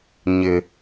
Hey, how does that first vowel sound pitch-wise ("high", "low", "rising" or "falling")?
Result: high